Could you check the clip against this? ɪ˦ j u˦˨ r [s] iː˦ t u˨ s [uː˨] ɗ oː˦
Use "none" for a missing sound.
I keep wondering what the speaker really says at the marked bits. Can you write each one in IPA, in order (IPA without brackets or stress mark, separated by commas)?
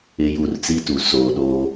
t͡s, oː˨